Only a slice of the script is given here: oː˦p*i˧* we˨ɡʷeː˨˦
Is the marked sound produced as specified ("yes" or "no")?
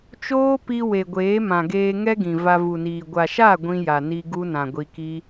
yes